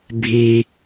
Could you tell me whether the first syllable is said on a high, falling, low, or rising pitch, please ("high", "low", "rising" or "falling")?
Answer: low